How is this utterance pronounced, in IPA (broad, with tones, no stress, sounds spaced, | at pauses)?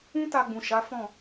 ũ˦ t a˧ ɡ͡b ũ˨ ʃ a˨˦ f ɔ̃˦˨